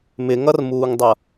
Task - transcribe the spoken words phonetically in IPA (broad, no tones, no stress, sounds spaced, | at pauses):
m ɪ ŋ ʌ r m uː ŋ dˤ ʌ